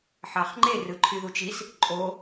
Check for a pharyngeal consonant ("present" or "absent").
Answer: present